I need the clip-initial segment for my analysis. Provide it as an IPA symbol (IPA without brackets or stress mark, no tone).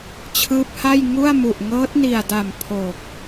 t͡ɕʰ